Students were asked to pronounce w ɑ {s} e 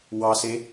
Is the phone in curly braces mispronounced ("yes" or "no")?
no